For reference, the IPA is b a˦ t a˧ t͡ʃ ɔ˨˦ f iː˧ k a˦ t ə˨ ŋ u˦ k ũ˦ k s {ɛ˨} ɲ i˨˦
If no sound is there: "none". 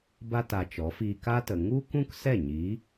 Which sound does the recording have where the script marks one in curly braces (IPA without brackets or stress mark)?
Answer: ɛ˦˨